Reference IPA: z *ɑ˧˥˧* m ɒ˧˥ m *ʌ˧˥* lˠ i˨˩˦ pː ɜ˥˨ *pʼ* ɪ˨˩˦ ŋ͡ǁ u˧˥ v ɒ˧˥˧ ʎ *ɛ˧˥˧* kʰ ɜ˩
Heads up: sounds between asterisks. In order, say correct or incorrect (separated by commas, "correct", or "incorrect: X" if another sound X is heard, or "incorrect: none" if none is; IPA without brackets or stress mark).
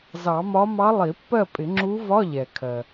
incorrect: ɑ˨˩˦, incorrect: ɑ˧˥, correct, incorrect: ɛ˩